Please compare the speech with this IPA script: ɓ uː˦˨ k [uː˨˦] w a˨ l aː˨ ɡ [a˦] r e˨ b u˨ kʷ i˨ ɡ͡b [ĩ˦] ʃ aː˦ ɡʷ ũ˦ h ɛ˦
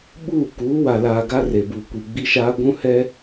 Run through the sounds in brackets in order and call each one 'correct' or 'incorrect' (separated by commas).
correct, correct, incorrect